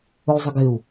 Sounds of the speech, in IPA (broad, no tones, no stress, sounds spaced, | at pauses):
ʊ y̯ zˤ ɐ ɡ ɪ u̯